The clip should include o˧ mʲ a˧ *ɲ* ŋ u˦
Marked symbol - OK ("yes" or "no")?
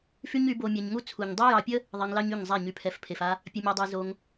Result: yes